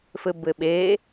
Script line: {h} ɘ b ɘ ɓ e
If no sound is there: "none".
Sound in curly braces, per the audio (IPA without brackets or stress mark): f